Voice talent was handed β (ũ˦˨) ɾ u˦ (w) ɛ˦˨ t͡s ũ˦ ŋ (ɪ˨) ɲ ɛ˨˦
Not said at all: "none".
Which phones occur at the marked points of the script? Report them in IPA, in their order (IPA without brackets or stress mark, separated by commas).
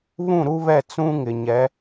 ũ˦˨, β, ɪ˨